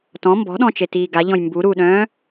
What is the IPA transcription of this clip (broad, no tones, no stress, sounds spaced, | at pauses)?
t ɔ̃ m b ɔ̤ ɗ ɔ̃ t͡ʃ e t iː ɡ a ʎ ɔ̃ j m b u ɾ u ɗ œ̃ː